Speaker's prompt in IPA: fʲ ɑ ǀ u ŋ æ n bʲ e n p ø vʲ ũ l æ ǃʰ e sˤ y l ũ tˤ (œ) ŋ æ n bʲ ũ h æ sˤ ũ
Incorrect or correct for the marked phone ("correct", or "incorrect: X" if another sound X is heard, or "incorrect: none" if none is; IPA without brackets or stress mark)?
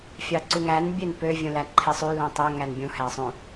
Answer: incorrect: æ